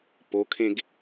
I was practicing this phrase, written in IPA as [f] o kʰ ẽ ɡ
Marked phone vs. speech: incorrect: p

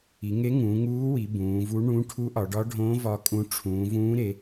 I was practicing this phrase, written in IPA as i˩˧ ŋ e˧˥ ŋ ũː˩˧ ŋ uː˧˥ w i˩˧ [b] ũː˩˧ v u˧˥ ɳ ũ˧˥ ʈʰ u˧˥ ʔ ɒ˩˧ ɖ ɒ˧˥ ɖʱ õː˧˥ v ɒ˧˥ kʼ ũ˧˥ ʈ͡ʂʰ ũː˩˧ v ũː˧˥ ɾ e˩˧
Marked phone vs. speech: correct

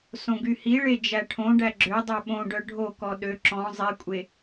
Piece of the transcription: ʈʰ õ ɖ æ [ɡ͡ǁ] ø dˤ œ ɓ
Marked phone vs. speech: correct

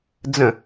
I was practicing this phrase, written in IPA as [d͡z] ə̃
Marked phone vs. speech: correct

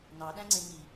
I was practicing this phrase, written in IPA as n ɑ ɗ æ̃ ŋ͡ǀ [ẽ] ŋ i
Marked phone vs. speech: correct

